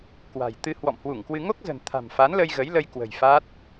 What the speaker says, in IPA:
k w a̤˨˩ j t̪ ɨ˧ h w ɔ̰˧˨ m h w u˧˩ ŋ k w ɨ˧ ŋ o˦˥ k̚ z ə̤˨˩ n t̪ʰ a̤˨˩ m f a˨˦ n l ə˧ j ɣ ə˨˦ j l ə˧ j k w ə̤˨˩ j f a˦˥ t̚

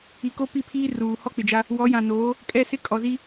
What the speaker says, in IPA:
i˨ k o˦ p i˦˨ pʰ iː˦ r uː˨ h ɔ˦ k͡p ɪ˨ d͡ʒ a˦ | w ɔ˨˦ j ã˨ n oː˨˦ | kʼ ɛ˦˨ s ɪ˦ kʼ ɔ˨ z i˦

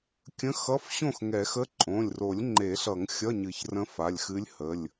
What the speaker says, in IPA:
kʲ ə̃˧˥˧ x ʌ˧˥˧ f ɕ õ˥˨ x ŋ ɛ˨˩˦ x ə˧˥˧ ǃʼ õ˩˧˩ lʲ r o˨˩˦ lʲ ŋ͡ǃ e˨˩˦ ɬ ʌ˨˩˦ ŋ xʲ ʌ˧˥˧ ɲ ɨ˨˩˦ ç r ə̃˧˥ f a˩˧˩ lʲ x ɨ˧˥ lʲ h ə˩˧˩ lʲ

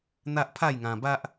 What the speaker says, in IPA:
n̪ a˦ ʔ pʰ a˥˧ j ŋ ã˧ b a˦ ʔ

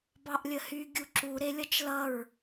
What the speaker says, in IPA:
b ɑ ʔ lʲ ə h y ɡʲ u ǁ u ɾ e lʲ ʌ t͡ʃ l ʌ ɹ

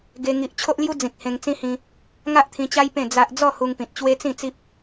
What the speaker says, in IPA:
ɡ e˧ ŋ i˨ ʔ t͡ɕʰ o˦ ʔ l j u˦ d͡z ĩ˨ k̚ h ẽ˧ ŋ t͡s ĩ˦ h ĩ˧ | ŋ a˦ ʔ t̪ʰ ĩ˧ t͡ɕ a˦ j p ẽ˥˧ d͡z a˦ ʔ d͡z ɔ˥˧ h u˧ ŋ p ĩ˨ t̚ t͡ɕ w e˦ t͡s ĩ˥˧ t͡s i˦ p̚

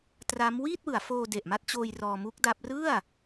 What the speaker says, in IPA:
t r aː˦˥ m w iː˥˩ t̚ w ɯ˩˦ a̯ f oː˧ d e˨˩ ʔ m a˦˥ t̚ t͡ɕ oː˧ j r ɔː˧ m u˦˥ k̚ d a˦˥ p̚ r ɯ˥˩ a̯

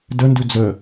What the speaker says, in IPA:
d ə n d ʉ d͡z ə

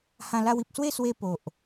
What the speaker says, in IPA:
h ã˧ l a˧ w i˨ p̚ s w e˥˧ s w e˧ p o˨ ʔ

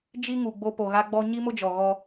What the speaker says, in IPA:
d͡ʒ i˦ ŋ u˨ ɡ͡b o˦ p o˨ ɣ a˦ ɡ͡b ɔ˦ ɲ i˦ m ʊ˦ d͡ʒ ɔ˨ ɣ ɔ˦

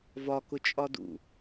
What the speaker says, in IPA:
v ɒ k ʊ t͡ʃʼ ɒ d ṵ

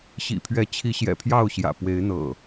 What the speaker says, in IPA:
ɕ ḭ˨˩ pʰ ɥ ɛ˨˦ t͡ɕʰ i˨˦ ɕ j ɛ̰˨˩ pʰ j ɑ˥˨ ʊ̯ ɕ j ä̰˨˩ p w e˨˦ ɪ̯ n̪ ɤ̰˨˩

